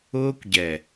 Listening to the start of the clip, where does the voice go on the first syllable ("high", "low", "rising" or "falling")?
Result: high